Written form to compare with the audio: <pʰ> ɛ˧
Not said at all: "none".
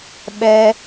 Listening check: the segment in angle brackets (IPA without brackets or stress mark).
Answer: ɓ